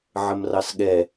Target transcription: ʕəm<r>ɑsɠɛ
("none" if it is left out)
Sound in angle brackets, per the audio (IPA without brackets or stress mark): r